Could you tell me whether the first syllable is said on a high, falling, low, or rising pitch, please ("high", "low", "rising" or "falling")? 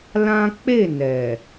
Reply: high